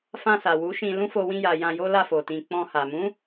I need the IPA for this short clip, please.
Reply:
f ã˧ s a˨ w u˨˦ ʃ ĩ˧ l ũ˦ f o˧ w ĩ˧ j a˨ j ã˧ j o˦ l a˦˨ f o˨ t ĩ˨ k͡p ɔ̃˧ h a˨ m ũ˨˦

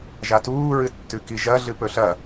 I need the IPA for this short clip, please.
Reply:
ʒ a t uː ɹ ɨ tː ʉ k i ʒ ɐ ɮ ɨ p ɵ ɬ ɐ

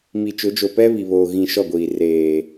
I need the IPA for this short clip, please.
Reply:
m i˨ t͡ʃ ʊ˨˦ d͡ʒ o˨ p ɛ˦ β i˨ β oː˨ ɣ ĩ˨ ʃ ɔ˦˨ ɡʷ iː˨ r eː˨

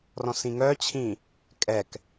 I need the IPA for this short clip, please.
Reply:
r ɔ̃ s ĩ ŋ œ t͡ɕʰ ĩ | kʼ ɛ k

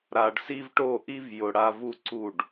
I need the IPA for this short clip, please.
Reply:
ɾ a˨ ɖ s i˦ v ʈ o˦˨ ʔ i˦ v j ʊ˨ ɽ a˦ v u˦ ǀ u˦˨ ɖ

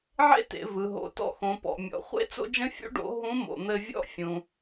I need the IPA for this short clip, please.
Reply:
ʕ ḛ˥ t ḛ˩˧ v ɯ˩ ɦ o̰˩˧ t ɔ̰˧ x õ˩˧ p ɔ̰˩ mʲ ɔ̰˩˧ χʷ ḛ˥ t͡s o̰˥ d͡ʒ ə̃˥ fʲ ṵ˥ ɖ o̰˧˥ ɦ ũ˧˥ m o̰˩ n̪ ɘ˧ vʲ ɔ̰˥ fʲ ũ˩

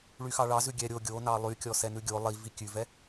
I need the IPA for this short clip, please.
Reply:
ɭ y x ɑ ɭ ɑ z ʉ ɡʲ ɛ ɾʲ o ɡʲ o n ɑ lˠ y kʲ ɔ s ɛ n ʉ ɡʲ o lˠ i v i kʲ ʉ v ɛ

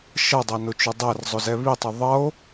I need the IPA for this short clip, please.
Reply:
ʃ ʌ dˤ æ n ʊ t͡ʃ ʊ dˤ æ r zˤ ʊ z ɛ β i tˤ ʌ ðˤ ʌ o̯

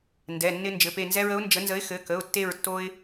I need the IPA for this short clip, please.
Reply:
n d ɛ˩˧˩ nː ɪ˦ n d͡ʒ ɘ˩˧˩ p e˦˨ n z ɛ˦ ɹ ə˨˥ ʊ̯ n d͡ʒ ə˨˥ n z ə˨˥ ɪ̯ x ɘ˩˧˩ k ə˩˧˩ ʊ̯ tː e˦˨ ɹ tː o˦ ɪ̯

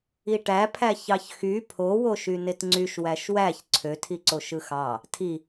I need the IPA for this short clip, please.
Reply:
i ʈ æ pʰ æ ç ɑ ç x y pʰ o w o ʃ y n e t ŋ͡ǀ y ʃ w æ ʃ w æ ç ǀʰ ø tʰ i ǀ o ʃ ɯ x ɑ | tʰ i

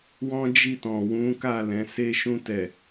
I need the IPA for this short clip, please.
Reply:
w ɔ̃˦ d͡ʒ i˦˨ t ɔ̃˨ w ũ˨˦ k a˦˨ l ɛ̃˨˦ s e˦ ʃ ũ˧ t ɛ˨

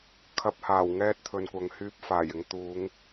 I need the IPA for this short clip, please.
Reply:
kʰ ɐ˨˥ p̚ h aː˨˩ w ŋ ɛː˧ t̚ t̪ʰ ɵ˨ n kʷ ɐ˨ ŋ h yː˧ p̚ f aː˨˩ j ɪ˨˧ ŋ t̪ uː˨˧ ŋ

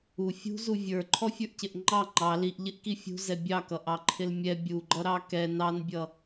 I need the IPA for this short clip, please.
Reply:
u fʲ ṳ z u vʲ ə˞ ǃʰ ɔ fʲ ə˞ ʔ c ɪ ʔ ŋ͡ǃ ɑ ŋ͡ǃ ɑ l i ʔ ʎ ɪ ʔ k i fʲ ṳ z ɛ bʲ ɑ k ʌ ʔ ɑ ǃʰ ɪ l mʲ ɛ bʲ u ɡ͡ǃ ʌ ɾ ɑ k ɛ n ɑ n bʲ ʌ

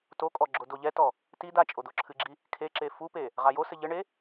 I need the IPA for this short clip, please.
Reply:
t o kʼ ɔ ɡ͡ǁ o d o ʎ ɛ t ɔ | t i d̪ a t͡ʃʼ o d̪ o ǁʰ ɨ ɡ͡ǁ i | kʰ e ǁ e f u p e | ʁ a j o s ɘ ʎ ɘ ɳ e

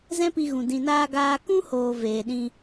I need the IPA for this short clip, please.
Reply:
z ɛ̃˦ p i˧ ɣ ũ˨ d ĩ˨ n aː˧ ɡ aː˧ k ũ˦ h oː˨ v eː˨ ɗ ĩ˧

